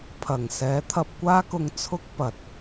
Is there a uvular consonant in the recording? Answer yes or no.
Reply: no